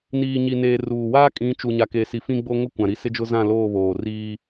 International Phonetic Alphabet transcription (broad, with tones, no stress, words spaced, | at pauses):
niː˨ɲi˨neː˨ ruː˨ waː˦kʼĩ˨˦t͡ʃu˨ ɲa˨ke˨si˨ fĩ˦ ɡ͡bo˦ŋʊ˦ kʷã˨ɾi˦ sɪ˦d͡ʒʊ˦zã˦˨ loː˦˨βoː˨ riː˦